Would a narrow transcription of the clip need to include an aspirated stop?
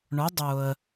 no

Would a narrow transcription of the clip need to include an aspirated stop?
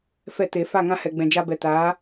no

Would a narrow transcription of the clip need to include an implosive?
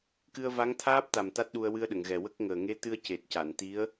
yes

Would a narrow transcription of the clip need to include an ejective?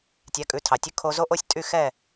yes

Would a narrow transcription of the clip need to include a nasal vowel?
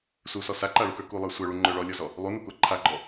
no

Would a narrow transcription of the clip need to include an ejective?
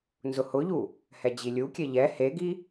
no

